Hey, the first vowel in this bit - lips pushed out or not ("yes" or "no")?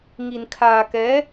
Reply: no